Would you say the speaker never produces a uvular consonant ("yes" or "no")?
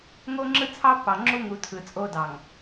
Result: yes